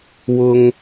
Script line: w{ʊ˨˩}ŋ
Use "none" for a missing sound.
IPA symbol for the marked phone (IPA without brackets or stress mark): ʊ˥